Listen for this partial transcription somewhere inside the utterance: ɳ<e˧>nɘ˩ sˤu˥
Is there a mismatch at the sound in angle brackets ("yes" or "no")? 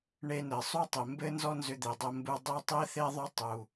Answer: no